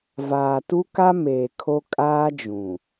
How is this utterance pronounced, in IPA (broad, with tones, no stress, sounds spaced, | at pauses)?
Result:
v aː˨ t u˦ k a˦ m eː˨ kʰ o˦ kʼ aː˦ d͡ʒ ũ˨